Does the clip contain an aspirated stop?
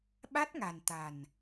no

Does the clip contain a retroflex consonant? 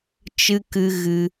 no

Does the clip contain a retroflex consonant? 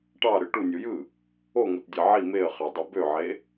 yes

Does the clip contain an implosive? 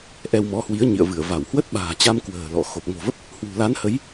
yes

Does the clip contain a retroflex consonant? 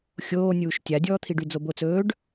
yes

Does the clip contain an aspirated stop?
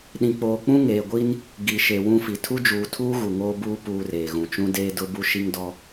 yes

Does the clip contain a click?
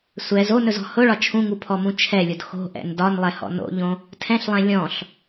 no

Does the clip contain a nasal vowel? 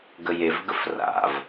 no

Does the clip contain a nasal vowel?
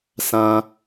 yes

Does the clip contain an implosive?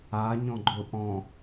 no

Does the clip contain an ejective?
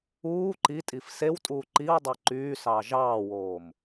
yes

